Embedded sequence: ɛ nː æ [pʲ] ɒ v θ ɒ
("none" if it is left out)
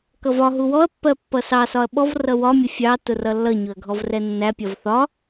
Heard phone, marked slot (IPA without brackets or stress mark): pʲ